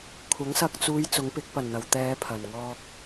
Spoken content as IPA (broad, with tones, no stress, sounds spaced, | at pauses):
kʷʰ ɐ˨˥ ŋ s ɐ˧ k̚ t͡s uː˨˧ j t͡s ʊ˨˥ ŋ p ɪ˨˥ k̚ p ɐ˨˩ n n̪ ɐ˨˩ w t̪ ɛː˨˧ pʰ ɐ˨˩ n ŋ ɔː˧ k̚